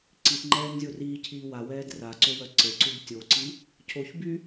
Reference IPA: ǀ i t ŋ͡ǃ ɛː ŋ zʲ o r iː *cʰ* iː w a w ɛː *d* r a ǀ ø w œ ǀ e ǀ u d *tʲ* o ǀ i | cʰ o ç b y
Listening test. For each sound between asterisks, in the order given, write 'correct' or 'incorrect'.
correct, correct, correct

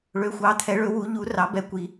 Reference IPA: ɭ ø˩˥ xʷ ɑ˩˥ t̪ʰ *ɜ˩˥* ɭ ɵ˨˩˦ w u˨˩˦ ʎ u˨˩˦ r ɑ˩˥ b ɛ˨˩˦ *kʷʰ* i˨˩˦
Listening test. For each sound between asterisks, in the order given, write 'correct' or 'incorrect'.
incorrect, incorrect

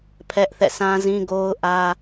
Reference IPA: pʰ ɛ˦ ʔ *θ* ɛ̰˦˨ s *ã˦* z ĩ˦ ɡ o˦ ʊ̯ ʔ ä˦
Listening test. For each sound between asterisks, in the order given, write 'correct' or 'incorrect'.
correct, correct

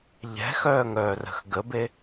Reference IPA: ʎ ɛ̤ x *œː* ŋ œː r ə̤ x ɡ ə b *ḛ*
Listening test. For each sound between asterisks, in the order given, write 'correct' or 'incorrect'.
correct, incorrect

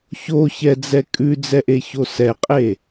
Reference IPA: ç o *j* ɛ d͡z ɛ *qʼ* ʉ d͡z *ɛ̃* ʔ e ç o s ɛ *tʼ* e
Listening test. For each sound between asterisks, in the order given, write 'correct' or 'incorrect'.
incorrect, incorrect, incorrect, incorrect

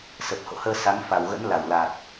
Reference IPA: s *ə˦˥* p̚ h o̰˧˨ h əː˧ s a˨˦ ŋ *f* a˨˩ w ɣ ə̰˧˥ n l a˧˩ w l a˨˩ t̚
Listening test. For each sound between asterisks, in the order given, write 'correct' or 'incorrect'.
incorrect, correct

